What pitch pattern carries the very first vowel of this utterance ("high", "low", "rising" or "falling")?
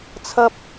high